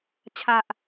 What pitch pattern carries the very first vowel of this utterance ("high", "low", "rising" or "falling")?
low